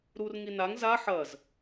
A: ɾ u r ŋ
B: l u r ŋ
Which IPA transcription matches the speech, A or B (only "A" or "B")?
A